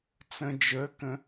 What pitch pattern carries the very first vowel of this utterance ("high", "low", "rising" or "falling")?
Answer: low